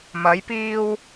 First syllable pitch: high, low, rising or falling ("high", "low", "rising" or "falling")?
rising